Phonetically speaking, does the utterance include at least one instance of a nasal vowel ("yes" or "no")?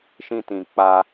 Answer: yes